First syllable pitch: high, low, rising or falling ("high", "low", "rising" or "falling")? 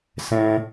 high